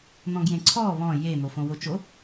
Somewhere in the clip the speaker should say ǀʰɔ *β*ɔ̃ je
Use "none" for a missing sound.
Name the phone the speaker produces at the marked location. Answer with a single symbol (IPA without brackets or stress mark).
β